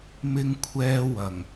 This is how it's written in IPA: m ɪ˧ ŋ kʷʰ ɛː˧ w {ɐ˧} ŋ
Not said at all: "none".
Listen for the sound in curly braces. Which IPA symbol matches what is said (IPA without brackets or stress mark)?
ɐ˨˩